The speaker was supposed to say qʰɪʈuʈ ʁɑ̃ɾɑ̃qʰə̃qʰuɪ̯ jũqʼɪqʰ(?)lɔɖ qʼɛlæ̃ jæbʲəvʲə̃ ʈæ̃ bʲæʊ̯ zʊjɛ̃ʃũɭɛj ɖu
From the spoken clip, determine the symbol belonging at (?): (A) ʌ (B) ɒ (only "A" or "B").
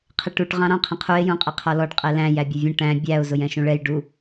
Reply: B